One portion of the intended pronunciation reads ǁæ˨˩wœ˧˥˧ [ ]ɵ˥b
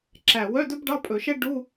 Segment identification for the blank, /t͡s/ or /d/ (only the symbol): d